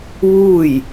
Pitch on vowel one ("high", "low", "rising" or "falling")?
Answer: falling